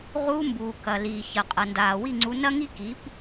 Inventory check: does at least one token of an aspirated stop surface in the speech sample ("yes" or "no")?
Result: no